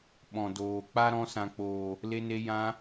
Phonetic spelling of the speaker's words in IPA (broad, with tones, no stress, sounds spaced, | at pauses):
ɓ ɔ̃˨ d oː˨ k͡p a˦ ɾ ɔ̃˧ s ã˨ k͡p oː˨ | l e˧ n e˧ j ã˧